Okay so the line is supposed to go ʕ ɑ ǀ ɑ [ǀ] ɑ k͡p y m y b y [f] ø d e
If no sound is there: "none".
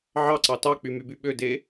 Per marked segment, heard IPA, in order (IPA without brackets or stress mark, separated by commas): t, ɓ